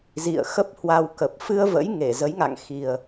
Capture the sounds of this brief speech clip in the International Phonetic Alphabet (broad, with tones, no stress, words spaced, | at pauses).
zḭ˧˨ə̯xə˦˥p̚hwa˧wkə˨˩p̚ fɨ˧ə̯və̰˧˥jŋe˧˩ zə˨˦jŋa̰˧˨ŋxi˨˩ə̯